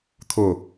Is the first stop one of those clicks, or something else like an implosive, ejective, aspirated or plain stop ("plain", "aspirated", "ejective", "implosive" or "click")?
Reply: aspirated